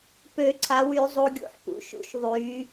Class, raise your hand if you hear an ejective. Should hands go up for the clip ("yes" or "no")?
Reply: no